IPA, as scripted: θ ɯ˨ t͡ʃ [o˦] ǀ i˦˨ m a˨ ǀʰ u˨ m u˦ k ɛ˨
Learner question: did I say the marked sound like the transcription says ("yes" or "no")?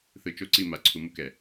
yes